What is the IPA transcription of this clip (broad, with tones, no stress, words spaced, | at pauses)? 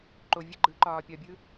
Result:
ǃo˨vʲə˦ ɡ͡ǃɯ˨˦ ǃɒː˨pʲɒ˨bʲɯ˦